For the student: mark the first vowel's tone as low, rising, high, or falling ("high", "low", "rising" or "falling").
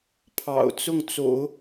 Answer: low